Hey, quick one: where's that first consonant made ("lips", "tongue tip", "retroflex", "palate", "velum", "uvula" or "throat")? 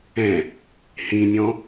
throat